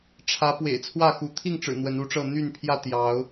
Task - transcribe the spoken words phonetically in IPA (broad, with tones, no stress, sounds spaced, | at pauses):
ʈ͡ʂʰ ä˨˦ p w ḛ˨˩ ɪ̯ t͡sʰ w ä˥˨ x u˨˦ t̪ʰ i˥˨ ŋ ʈ͡ʂ ɻ̩˨˩ n̪ w ə˨˦ n u˨˦ ʈ͡ʂ ɤ˥˨ n̪ y˥˨ n pʰ j ä˥˨ t̪ j ɑ˨˦ ʊ̯